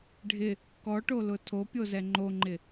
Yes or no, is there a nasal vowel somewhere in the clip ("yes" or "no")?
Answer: no